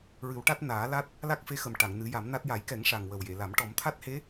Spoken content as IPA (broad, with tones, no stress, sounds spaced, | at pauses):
ɹ ɨ˨˩˦ w ʈ a˦˥ t̚ n aː˨˩˦ l a˦˥ t̚ | l a˦˥ k̚ f e˧˥ x ə˨˩ m ʈ a˨˩˨ ŋ n ɨ˨˩˦ j a˨˩˦ m n a˦˥ t̚ j a˨˩˦ j k ɛ˨˩˦ ŋ ʂ a˨˩ ŋ w ə˨˩ w j e˨˩˨ l a˨˩˦ m ʈ ɔ˨˩˦ m t̪ʰ a˦˥ t̚ h e˧˥